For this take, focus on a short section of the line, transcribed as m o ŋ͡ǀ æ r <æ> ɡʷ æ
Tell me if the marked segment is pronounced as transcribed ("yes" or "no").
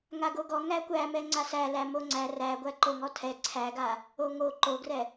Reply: yes